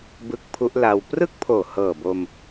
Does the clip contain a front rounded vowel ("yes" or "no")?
no